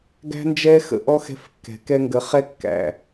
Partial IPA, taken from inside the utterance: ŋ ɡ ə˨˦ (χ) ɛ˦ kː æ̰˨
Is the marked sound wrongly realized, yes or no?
no